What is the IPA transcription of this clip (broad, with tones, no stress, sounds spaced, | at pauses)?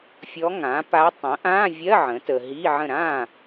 fʲ ɔ˧˥ ŋ ã˩˥ p a˧˥ tˤ ə̃˩˥ ʔ ã˧˥˧ vʲ ɜ˧˥˧ ʕ ə̃˩˥ t ə˨ ɦ i˧˥˧ ʕ ə̃˥˩ ɾ ã˥˩